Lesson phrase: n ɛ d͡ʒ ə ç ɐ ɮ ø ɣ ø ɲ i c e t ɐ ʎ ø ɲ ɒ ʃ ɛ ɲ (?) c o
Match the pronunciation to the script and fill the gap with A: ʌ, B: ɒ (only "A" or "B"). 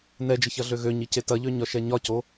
B